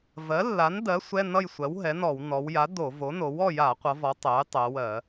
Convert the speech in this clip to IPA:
v ɜ˩˥ lː a˩˥ n d ɜ˩˥ sʷ ɛ˧˥˧ n ʌ˥˨ j sʷ ɜ˩˥ w ɦ ɛ˩˥ n ɔ˧˩˧ w n ɔ˩˧ w j a˩˥ d o˧˩˧ v o˩˥ n o˩˧ w ɔ˥˨ j a˧˩˧ qʷ ʌ˩˧ v ɔ˩˧ tˤ ɛ˩˥ j tˤ ɛ˩˧ w ɜ˧˩˧

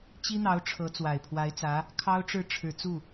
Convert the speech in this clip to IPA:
t͡ɕ i˥ n̪ ɑ˧˥ ʊ̯ ʈ͡ʂʰ ɤ˧˥ t͡s w a˨˩ ɪ̯ pʰ w a˧˥ ɪ̯ t͡s ä˧˥ | kʰ ɑ˥ ʊ̯ ʈ͡ʂ ɻ̩˥˩ ʈ͡ʂʰ ɻ̩˨˩ t͡s u˥˩

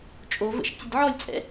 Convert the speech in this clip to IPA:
t͡ʃʼ o v ə̰ ʃ tʲ ɤ d ʕ ɔ lʲ t͡sʼ ɛ̰

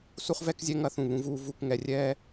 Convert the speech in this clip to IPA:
s u˦ χ v ɛ˦ k zʲ ɛ˦ ŋ ɐ˦ θ ũ˦˨ β ũ˦ v uː˦ v u˧ k ŋ ɛ˧ rʲ ɛː˦

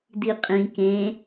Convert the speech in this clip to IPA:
d i qʼ ĩ k ẽ

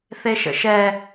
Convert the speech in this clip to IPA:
θ e ʃ ə̰ ʃ ɛ

